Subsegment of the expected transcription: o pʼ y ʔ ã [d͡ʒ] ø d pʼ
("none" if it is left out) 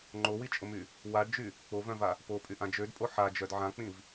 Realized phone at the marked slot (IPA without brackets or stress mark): d͡ʒ